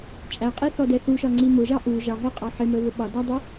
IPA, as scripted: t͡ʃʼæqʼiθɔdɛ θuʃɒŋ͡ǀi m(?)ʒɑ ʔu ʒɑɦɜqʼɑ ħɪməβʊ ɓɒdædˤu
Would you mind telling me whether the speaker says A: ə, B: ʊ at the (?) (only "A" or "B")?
B